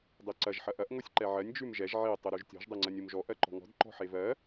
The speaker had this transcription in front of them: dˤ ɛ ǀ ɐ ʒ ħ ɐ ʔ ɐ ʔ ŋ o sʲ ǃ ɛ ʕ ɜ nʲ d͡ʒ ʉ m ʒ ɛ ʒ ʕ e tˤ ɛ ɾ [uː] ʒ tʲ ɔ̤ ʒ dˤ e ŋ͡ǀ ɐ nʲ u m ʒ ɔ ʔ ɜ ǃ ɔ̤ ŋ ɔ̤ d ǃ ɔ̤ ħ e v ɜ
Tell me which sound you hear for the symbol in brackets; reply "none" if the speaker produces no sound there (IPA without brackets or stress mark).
u